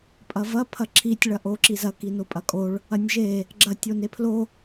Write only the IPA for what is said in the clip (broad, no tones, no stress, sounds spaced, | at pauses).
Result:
pʼ ɐ v ɐ pʰ ɐ ǁʰ i tʲ ɭ ɐ ʔ o ǁ i z ɐ k i n o pʼ ɐ kʼ o ɭ | ɐ nʲ ʒ e | ɡ͡ǁ ɐ tʲ o n e pʰ l o